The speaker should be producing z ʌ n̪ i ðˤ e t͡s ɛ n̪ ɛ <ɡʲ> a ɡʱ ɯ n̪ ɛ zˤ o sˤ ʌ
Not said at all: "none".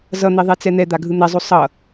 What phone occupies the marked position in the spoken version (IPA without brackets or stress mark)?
d̪